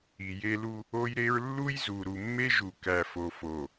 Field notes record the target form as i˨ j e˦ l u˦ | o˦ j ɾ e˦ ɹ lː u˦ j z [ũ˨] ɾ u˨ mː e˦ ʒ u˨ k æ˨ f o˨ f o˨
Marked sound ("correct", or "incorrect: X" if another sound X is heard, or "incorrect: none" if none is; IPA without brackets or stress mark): incorrect: u˨